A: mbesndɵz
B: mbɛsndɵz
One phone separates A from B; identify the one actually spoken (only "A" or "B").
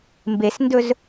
A